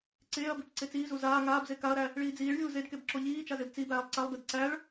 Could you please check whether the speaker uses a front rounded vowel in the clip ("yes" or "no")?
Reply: no